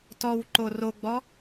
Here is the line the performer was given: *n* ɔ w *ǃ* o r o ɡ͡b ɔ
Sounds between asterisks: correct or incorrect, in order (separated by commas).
incorrect, correct